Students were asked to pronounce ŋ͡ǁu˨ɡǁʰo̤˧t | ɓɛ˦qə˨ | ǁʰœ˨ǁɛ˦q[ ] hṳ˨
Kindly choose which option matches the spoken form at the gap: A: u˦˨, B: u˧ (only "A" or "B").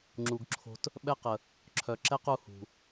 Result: B